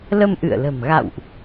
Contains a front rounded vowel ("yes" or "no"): no